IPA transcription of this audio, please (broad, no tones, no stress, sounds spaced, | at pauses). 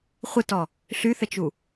χʷ ɘ t ɔ | ɬ y θ ə t͡ʃ u